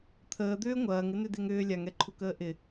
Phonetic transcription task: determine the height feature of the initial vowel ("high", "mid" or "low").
mid